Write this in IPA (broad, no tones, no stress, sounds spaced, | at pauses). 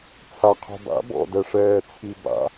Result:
t͡sʰ a qʰ o̤ b a̰ b ɔ̰ d ɛ ʂ ɛː t͡sʰ i b a̰